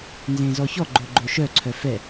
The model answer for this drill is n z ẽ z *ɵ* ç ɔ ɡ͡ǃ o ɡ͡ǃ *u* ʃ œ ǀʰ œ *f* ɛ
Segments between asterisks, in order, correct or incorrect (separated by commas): incorrect, incorrect, correct